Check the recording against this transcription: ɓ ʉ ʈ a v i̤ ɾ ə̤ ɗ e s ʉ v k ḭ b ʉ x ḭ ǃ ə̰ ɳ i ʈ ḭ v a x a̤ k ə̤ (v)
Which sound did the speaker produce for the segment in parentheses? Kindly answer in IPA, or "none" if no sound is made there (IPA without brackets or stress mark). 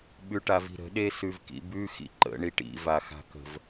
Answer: v